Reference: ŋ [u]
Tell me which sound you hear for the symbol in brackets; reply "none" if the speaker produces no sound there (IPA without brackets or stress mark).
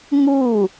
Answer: u